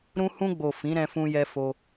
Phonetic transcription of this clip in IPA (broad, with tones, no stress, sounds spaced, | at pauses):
ɾ ũ˧ h ũ˧ ɡ͡b o˨ f ĩ˨˦ ɾ ɛ̃˧ f ũ˧ j ɛ˧ f o˦